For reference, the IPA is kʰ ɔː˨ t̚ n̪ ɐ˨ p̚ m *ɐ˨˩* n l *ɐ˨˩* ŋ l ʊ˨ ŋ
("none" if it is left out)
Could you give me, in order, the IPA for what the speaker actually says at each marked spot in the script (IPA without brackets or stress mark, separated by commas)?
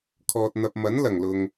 ɐ˨˥, ɐ˨˩